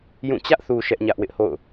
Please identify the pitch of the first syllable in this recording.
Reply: falling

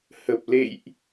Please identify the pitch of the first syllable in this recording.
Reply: low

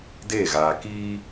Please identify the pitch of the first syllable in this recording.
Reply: falling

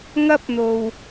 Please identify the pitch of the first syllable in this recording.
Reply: high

